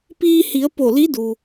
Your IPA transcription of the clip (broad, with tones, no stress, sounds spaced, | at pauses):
p iː˧ h i˩˧ ə̯ p o˧˩ l i˧˥ d u˩